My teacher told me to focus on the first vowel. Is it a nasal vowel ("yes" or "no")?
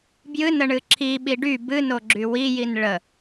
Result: no